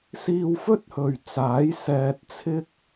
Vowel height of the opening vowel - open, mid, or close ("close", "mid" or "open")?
close